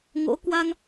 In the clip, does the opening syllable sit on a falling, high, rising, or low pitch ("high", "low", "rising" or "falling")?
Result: rising